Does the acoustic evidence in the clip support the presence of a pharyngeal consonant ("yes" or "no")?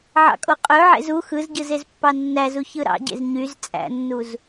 yes